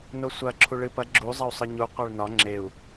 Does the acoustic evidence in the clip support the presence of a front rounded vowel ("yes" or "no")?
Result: no